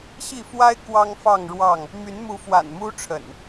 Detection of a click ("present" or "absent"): absent